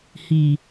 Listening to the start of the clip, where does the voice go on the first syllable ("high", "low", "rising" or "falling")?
low